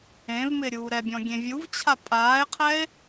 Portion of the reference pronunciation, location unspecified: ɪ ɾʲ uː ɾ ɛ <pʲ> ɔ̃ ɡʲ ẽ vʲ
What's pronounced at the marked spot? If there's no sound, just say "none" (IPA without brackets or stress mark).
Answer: bʲ